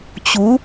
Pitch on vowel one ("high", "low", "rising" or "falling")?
rising